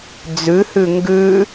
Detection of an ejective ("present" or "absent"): absent